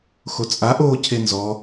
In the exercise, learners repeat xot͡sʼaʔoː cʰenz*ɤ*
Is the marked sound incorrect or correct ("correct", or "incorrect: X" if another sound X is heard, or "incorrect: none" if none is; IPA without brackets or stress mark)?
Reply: incorrect: ɔ